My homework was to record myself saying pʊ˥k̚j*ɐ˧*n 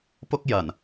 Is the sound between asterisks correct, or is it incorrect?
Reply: incorrect